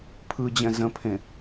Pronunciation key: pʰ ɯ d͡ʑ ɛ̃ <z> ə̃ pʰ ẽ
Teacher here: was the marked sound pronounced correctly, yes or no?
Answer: yes